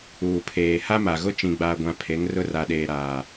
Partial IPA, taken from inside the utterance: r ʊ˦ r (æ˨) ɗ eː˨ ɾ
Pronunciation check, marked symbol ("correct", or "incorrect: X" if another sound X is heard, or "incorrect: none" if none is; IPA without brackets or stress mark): incorrect: a˨